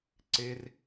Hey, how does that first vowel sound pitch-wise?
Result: high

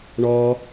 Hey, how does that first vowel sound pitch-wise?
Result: high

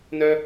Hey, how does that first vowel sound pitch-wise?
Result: high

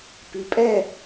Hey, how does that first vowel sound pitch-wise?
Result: rising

